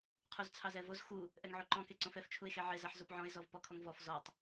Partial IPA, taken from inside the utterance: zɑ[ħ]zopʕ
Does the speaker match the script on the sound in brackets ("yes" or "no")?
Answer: yes